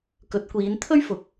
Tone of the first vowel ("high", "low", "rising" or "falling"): rising